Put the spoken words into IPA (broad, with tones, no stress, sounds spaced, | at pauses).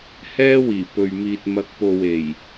h ɛː˥ w iː˨˩ p ɵ˨ ɥ m iː˨ t̚ m ɐ˨˥ k̚ p o˨ w e˨˩ j